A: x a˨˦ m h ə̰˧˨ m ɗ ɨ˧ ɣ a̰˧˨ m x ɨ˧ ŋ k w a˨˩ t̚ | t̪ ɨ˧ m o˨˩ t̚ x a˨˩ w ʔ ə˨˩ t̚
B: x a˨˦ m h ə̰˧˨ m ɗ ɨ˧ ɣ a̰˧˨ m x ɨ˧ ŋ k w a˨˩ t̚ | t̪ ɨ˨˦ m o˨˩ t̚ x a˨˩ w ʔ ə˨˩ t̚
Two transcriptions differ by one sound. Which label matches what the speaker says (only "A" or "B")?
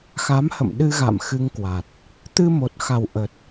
A